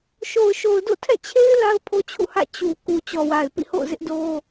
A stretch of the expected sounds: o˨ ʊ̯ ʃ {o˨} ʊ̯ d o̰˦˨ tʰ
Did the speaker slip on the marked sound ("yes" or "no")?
no